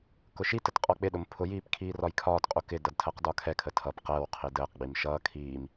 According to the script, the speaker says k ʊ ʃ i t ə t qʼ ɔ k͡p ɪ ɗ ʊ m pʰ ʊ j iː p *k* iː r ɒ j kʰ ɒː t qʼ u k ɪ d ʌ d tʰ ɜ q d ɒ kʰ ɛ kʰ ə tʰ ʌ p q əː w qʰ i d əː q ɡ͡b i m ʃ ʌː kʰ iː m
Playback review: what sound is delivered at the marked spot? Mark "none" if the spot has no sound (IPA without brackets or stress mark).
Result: kʰ